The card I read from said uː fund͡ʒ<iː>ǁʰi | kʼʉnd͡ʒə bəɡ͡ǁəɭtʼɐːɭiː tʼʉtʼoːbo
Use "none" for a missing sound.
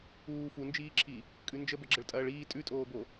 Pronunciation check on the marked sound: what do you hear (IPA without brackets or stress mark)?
iː